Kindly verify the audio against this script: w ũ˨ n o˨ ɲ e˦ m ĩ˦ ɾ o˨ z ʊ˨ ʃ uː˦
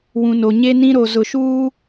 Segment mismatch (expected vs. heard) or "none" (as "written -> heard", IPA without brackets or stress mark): m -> n